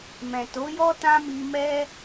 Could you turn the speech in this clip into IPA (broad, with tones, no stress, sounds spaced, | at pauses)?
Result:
m ɛ̃˨ t o˨˦ j ɔ˦ t ã˦ m i˧ m ɛ˦